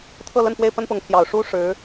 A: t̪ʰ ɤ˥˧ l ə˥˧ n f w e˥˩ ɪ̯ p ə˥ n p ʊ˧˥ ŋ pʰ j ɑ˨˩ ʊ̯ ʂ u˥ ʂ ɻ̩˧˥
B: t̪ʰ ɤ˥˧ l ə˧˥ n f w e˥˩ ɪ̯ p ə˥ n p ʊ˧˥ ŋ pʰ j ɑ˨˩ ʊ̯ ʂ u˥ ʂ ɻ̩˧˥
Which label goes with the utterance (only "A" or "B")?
A